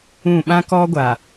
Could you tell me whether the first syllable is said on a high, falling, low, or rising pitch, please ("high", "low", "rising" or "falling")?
falling